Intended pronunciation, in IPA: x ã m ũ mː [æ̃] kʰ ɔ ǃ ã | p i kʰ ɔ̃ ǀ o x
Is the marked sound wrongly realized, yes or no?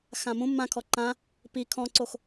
yes